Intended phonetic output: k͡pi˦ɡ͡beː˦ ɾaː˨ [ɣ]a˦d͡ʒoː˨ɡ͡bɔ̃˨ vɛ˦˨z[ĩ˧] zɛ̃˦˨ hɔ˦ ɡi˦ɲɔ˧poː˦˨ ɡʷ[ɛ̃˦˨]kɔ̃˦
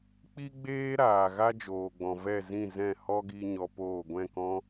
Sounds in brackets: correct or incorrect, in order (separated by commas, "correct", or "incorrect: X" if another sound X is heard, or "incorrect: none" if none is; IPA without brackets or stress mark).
correct, incorrect: ĩ˦˨, correct